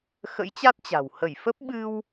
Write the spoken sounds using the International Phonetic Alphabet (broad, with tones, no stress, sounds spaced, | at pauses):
x ə̰˧˥ j t͡ɕ a˦˥ t̚ t͡ɕ a̤˨˩ w h ə˧˩ j f ə˦˥ p̚ ɓ ɨ˧ w